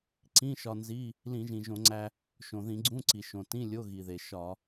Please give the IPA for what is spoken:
ǀ ĩ˧˥˧ ʃ ɒ˧ n z i˧˥˧ | l ĩ˧˩˧ ʒ ĩ˩ ʒ õ˧˩˧ ŋ͡ǀ æ˧ | ʃ õ˩ ð ĩ˧˩˧ ɡ͡ǀ ũ˧˥˧ ǀ i˩ ʃ õ˩ t ĩ˧˥˧ lʲ o˧˥˧ ɣ i˩ ð e˩ ʃ ɒ˧˩˧

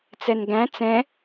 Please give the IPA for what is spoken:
t͡s ɛ n ɡ æ̃ t͡s ɛ̃

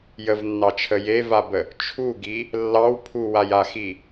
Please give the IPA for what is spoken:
j ə v nː ɑ t͡ʃʰ ə j e v a b ə | t͡ʃʰ u ɡ i | lː ɑ w pʰ u w a j a x i

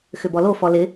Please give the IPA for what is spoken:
x ʏ b ɔ l o f ɔ l ɪ

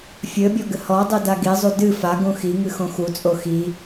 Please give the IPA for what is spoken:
fʲ ɘ bʲ ɔ ɡ ɘ h ɔ dˤ i d a ɡ i zˤ u d ɨ f a ɡ ũ x i ŋ ɨ x õ x u t͡sʼ o x i

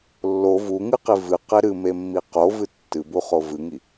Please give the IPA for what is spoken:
lː o v u ŋ ɨ q i v ɨ q e ɾ ɨ m e mː i q o v ɨ tː ɨ b u χ o v ɨ ŋ i

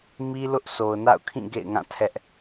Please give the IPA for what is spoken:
m i˦ l ʊ˦ ʔ s o˨ ʊ̯ n a̰˦˨ ʊ̯ kʰ ĩ˦˨ ɡ ḛ˦˨ ɪ̯ ŋ ã˦˨ tʰ ɛ˦ ʔ

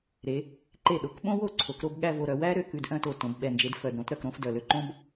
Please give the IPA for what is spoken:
ɾ e˩˧ | ǃ e˧˩ ɗ o˩˧ k ɓ õ˥ w o˥˧ ǀʰ o˩˧ k ɾ o˥˧ b ɠ æ˥˧ v o˧ ɾ œ˩˧ w æ˥ ɾ ø˥˧ k ʉ˧ d ʔ œ̃˥˧ t o˧˩ t õ˩˧ b ɓ ɛ˧˩ n d͡ʒ e˧ d f œ˧˩ d ɾ õ˥ t ɾ œ˧ k ɾ õ˥ f d œ˧˩ l ø˥ ǃ õ˥ b

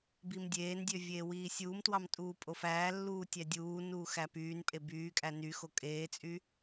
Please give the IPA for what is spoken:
b i m dʲ eː n dʲ ø vʲ eː w iː sʲ uː m t w ɑ m tʼ uː pʼ o f æː lː uː tʲ æ dʲ uː n uː x æ p yː n pʼ e b yː kʼ æ n y x o kʼ eː t͡sʼ y

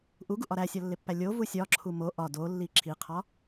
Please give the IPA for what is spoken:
ʔ u ɡ u ʔ ɒ ɾ æ sʲ ɒ lː e pː æ lʲ o v u sʲ ɒ ǁʰ u m o ʔ ɒ d o lː i ǁʰ i qʰ ɒ

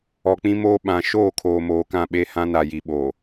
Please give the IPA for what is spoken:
ɔ˨ k͡p ĩ˦ m oː˦ ɓ ã˨ ʃ oː˦˨ kʰ oː˨ m oː˨ k ã˦˨ ɓ e˦˨ h ã˦ n a˨ j i˨ ɓ o˨

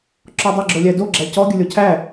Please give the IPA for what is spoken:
ǁ ɔ dˤ ə ɡ͡ǁ o lʲ æ d o ɡ͡ǁ æ c ɔ ɡʲ ə lʲ ɔ cʰ æ

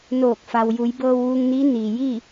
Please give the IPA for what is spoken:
n oː˧˩ k̚ f a˩ w j u˩˧ j b ɤː˧ w ʋ uː˧ ŋ n iː˧˥ n iː˩ j iː˥˨

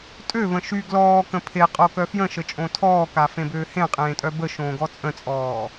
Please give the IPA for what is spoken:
tʼ ø v ə̃ ʃ y ɡ l ɔː k ə̃ pʰ e qʼ o k œ f j ə̃ ʃ ə t͡ʃʼ õ tʰ ɔː k a f ẽ b øː h ẽ qʼ ẽː tʼ œ b ə ʃ õː ɡ ɔ t͡sʼ ə̃ t͡sʼ ɔː

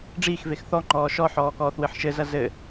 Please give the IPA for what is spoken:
ɖ͡ʐ iː x v e x θ ɔ ŋ͡ǃ ɔː ʃ ɔ ħ ɔː k ɔː θ w ɨ ħ ʃ ɘ z ɐ z ɘ

